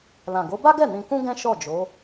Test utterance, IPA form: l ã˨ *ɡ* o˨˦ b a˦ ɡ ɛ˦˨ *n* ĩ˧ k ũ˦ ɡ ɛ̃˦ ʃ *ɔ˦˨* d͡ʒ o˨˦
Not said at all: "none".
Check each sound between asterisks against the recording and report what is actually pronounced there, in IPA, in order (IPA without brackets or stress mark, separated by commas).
ɡ, n, ɔ˦˨